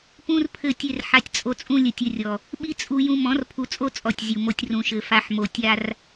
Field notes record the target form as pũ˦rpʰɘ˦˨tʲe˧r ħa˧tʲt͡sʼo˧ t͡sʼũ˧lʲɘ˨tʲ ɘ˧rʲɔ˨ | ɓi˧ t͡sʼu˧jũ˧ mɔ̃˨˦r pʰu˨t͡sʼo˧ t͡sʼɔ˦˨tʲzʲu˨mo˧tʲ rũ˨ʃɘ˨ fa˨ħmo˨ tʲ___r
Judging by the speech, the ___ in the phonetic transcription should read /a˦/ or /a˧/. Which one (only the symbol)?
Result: a˧